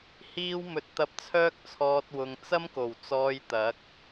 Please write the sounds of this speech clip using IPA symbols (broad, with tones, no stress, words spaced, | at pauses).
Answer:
hiː˥wmɵ˧t̚ t̪ɐ˧p̚t͡sʰœː˥k̚t͡sʰɔː˧t̚ wʊ˧ŋ t͡sɐ˥mko˨˩w t͡sɔː˧jt̪ɐ˨˥k̚